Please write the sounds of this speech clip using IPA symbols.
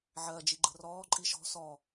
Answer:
ʕɜd͡ʒi ɡ͡ǃə̤rɔːǃʼi ʃɔ̤ sɔ

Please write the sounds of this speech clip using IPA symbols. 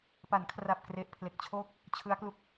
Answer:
pa˩˦nkʰra˨˩p̚ kre˨˩ʔpʰle˨˩k̚t͡ɕʰoː˥˩k̚ | t͡ɕʰɯ˦˥a̯klu˥˩k̚

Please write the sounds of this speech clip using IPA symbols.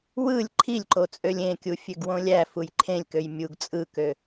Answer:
wɯlʲ ǃʰilʲǃot͡sʼølʲ ẽkʲu fʲøɡwõlʲæ fujǃʰẽlʲkøj mʲuɡ t͡sʼɯkø

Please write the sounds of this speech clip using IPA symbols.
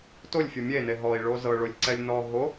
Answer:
tolʲfʲɤ mʲene ɦɔi̯ɭo zɤɭolʲǀɛlʲ nɔ ɦo

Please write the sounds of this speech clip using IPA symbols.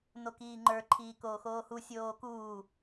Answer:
nokiːŋ͡ǃə˞ ǃʰiːkoːxoːhu sʲoːkuː

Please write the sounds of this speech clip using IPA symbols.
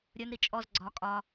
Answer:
ɾʲə˞nɾi t͡ʃʼɔz ɡ͡ǀɒ kʼɒ

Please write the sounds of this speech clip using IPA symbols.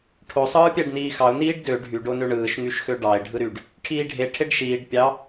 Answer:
ʈʰo sˤɯːpʲæɖniːxɑʊ̯ niːɖdø ɖʱyɖo nøɳɯːʃŋyʃxø ɖɑɪ̯ ɖʱɯɾyɖ | ʈʰiːɖʱe ʈʰeɖʃiːɖ pʲɑ

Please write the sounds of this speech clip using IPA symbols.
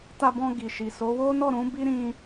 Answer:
ta˧bɔ̃˧ ɡi˨ʃi˨so˨˦ wo˦nɔ˦˨ ɾũ˨˦ bi˦ɾĩ˦

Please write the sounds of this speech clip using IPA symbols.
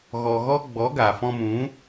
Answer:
ɣɔ˧ɣɔ˦ ɡ͡bɔ˨˦ɡa˨fɔ̃˧mũ˨˦

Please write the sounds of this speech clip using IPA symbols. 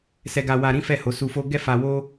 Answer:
sɛ˧ɡa˧ wa˧ɾĩ˦fɛ˦˨ ho˨˦su˧fo˦ ɡɛ˦fa˧wo˦

